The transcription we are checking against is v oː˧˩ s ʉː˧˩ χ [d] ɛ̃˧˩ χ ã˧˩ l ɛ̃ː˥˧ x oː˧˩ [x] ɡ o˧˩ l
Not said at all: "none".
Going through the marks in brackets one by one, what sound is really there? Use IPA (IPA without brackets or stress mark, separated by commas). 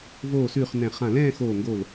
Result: n, ŋ